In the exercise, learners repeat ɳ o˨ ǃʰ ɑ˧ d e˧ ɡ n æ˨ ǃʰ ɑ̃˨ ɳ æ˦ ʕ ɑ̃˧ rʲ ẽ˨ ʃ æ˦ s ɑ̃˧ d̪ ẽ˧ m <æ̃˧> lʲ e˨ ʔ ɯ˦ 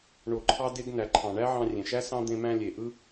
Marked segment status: correct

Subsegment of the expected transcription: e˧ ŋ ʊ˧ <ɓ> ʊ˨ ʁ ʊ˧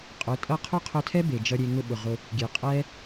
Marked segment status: correct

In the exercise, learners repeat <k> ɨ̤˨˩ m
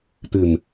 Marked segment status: incorrect: t̪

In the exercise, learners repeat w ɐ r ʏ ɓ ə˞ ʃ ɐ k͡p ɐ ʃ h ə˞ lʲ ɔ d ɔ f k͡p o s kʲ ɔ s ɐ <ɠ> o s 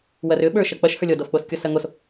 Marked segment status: incorrect: ŋ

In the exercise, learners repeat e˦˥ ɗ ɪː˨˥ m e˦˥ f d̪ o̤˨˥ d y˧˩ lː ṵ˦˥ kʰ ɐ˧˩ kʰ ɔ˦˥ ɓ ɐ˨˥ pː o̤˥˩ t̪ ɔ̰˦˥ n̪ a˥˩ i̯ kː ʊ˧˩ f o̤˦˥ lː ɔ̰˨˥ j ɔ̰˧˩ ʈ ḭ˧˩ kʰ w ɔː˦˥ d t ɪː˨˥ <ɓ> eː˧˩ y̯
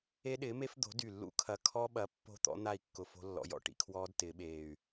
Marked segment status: correct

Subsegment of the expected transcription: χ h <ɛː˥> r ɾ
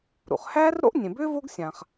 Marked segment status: incorrect: æː˥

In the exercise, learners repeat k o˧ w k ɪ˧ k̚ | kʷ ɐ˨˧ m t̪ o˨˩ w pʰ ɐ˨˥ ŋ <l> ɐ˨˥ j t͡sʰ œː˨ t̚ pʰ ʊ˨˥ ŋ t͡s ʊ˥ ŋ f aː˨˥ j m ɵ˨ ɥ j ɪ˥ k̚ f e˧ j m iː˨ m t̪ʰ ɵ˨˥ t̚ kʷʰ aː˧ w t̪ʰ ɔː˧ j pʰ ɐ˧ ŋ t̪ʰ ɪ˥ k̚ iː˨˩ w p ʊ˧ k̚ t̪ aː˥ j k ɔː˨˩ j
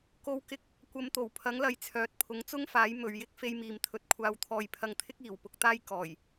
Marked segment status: correct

